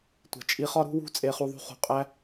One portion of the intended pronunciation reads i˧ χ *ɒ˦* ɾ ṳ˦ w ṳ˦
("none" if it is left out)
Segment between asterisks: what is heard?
ɒ˦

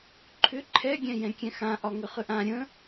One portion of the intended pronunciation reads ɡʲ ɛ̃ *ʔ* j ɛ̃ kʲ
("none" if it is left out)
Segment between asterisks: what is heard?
none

